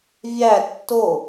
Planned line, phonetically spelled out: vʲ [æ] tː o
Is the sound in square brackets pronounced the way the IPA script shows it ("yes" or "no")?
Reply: yes